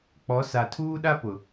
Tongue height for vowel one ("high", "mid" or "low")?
mid